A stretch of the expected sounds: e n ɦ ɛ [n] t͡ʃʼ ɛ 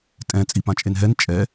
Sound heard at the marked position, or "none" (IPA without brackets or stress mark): n